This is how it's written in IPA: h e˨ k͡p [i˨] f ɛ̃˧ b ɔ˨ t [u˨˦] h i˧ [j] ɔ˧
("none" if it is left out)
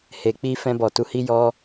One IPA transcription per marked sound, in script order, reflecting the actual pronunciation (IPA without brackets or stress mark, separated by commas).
i˧, u˨˦, j